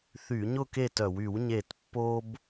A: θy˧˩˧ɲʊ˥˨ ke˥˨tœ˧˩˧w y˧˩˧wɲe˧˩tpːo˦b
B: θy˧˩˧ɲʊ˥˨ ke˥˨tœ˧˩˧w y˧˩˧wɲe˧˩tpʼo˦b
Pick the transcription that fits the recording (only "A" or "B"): A